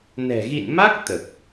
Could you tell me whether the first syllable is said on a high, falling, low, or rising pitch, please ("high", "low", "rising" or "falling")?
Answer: low